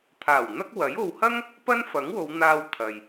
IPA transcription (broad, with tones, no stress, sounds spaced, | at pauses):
t̪ʰ aː˨˩ w n̪ ɐ˥ k̚ w ɐ˨˥ j o˨ w h ɐ˥ ŋ | p ɐ˥ n f ɐ˨˥ ŋ w o˨˧ w n̪ aː˧ w t̪ʰ ɐ˨ j